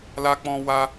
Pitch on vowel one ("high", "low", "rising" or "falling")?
high